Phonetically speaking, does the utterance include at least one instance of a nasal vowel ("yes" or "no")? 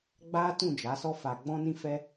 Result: yes